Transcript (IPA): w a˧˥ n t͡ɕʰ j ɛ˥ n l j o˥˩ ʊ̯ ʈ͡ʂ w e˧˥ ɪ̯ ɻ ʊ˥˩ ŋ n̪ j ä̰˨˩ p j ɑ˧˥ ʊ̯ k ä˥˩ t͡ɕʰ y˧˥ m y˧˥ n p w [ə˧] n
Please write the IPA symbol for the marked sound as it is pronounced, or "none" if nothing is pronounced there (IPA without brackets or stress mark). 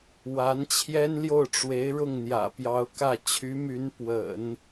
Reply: ə̰˨˩˦